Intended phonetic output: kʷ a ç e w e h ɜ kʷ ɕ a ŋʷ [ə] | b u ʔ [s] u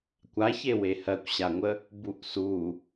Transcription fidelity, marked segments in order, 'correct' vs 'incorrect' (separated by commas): correct, correct